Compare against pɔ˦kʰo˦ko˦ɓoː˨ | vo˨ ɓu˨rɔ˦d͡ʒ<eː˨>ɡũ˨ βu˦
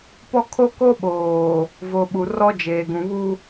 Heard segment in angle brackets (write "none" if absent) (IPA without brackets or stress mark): eː˨